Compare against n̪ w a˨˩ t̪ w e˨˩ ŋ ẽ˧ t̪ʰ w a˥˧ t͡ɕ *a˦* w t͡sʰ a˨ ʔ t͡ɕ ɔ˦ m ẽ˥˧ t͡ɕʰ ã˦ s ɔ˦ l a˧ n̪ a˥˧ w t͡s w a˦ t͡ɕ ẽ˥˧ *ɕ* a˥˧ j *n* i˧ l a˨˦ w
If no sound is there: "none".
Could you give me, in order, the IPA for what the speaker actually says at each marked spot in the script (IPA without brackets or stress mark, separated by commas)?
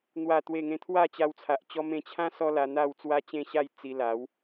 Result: a˧, ɕ, t͡s